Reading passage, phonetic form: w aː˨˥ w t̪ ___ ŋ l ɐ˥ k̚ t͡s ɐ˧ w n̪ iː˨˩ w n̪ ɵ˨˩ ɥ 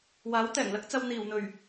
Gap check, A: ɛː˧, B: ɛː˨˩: B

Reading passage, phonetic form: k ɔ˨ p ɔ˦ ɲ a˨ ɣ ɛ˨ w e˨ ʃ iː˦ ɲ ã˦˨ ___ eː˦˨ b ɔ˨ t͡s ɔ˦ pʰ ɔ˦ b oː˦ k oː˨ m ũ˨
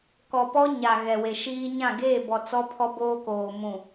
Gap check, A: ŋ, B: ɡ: B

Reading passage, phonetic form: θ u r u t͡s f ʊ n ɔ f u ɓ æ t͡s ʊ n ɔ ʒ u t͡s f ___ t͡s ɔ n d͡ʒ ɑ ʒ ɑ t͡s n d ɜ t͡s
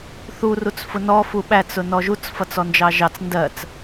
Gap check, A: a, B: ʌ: B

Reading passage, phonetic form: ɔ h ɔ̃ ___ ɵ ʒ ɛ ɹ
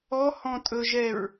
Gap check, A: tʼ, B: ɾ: A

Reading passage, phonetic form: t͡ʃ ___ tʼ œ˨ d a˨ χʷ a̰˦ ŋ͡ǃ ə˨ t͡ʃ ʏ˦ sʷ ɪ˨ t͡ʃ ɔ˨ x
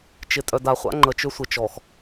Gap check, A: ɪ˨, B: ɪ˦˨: A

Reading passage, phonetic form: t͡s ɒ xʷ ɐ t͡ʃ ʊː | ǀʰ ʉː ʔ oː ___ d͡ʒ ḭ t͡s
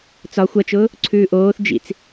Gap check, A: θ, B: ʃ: A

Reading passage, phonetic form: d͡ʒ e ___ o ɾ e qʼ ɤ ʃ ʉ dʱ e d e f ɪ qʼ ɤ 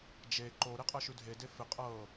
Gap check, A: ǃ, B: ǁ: A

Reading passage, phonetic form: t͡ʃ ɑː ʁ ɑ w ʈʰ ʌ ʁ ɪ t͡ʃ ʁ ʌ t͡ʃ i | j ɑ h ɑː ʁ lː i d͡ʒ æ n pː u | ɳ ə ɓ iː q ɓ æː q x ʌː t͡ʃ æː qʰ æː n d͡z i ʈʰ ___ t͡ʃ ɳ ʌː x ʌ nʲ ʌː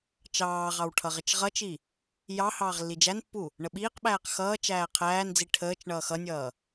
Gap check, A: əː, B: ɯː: A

